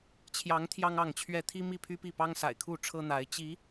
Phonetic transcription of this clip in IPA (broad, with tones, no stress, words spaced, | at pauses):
t͡ɕʰjɑ˨˦ŋ t̪ʰjɑ˦ŋɑ˥˨ŋt͡ɕʰɥɛ˥˨ t̪ʰi˦mi˥˨pʰy˦pi˥˨ pɑ˦ŋsa̰˨˩ɪ̯kʰu˥˨ʈ͡ʂʰɤ˦ n̪a˨˦ɪ̯ t͡ɕi˨˦